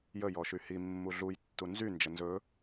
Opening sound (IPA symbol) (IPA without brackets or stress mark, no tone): j